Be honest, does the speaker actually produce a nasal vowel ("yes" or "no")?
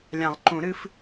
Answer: yes